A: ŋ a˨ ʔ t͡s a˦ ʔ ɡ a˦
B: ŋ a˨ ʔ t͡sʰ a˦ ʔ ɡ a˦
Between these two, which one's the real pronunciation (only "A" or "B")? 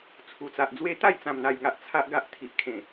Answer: B